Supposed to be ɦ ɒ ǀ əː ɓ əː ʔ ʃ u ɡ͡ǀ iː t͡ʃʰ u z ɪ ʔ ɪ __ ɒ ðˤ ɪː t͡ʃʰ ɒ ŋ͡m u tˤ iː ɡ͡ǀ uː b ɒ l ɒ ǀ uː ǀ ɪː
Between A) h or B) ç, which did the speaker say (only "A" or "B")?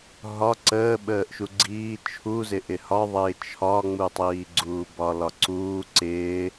A